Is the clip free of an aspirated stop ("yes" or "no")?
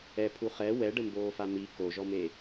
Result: no